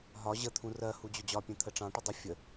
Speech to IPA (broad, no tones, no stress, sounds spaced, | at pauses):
ɦ ɒ ʑ ə t̪ʰ ũ r ɜ h u d͡ʑ ʊ d͡ʑ ɒ pʲ ɛ̃ t̪ʰ ə ʈ͡ʂ ɑ̃ ʈ ʊ dˤ ə fʲ ə